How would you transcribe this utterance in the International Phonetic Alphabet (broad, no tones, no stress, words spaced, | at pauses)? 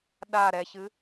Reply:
ɗa ɾɛçɨ